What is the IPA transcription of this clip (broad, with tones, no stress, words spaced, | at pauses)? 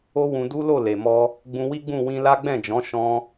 o˦wũ˧du˦lo˦˨ le˨mɔ˧ | ɡ͡bũ˧wi˦ɡ͡bũ˦˨ wĩ˧la˦ ɡ͡bɛ̃˦˨d͡ʒɔ̃˨˦ ʃɔ̃˧